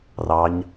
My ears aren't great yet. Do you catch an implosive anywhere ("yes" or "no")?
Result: no